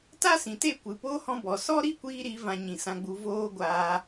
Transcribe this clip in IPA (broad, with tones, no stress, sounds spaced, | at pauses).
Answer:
t a˦ s ĩ˨ t e˦˨ kʷ ɨ˨ p oː˦ h ɔ̃˧ b ɔ˨ s ɔ˦ ɾ i˦ kʷ iː˧ ɾ i˨˦ v ã˧ ɲ ĩ˨ s ã˧ ɡ͡b u˧ v oː˦ ɡʷ aː˧